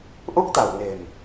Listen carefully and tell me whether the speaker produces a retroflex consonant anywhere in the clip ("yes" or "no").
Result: no